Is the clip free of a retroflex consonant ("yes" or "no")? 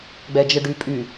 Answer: no